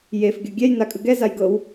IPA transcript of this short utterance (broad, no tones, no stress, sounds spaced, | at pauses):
j e f ɡʲ o ɡʲ ɛ j n a kʼ ɯ ɡ ɛ z a j ɡ ɤ w